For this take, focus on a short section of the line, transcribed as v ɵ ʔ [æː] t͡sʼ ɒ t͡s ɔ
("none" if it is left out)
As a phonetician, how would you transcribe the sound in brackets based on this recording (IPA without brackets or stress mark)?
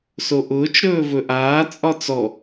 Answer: aː